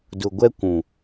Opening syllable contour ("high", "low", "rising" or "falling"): low